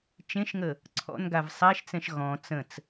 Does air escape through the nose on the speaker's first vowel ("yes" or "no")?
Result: yes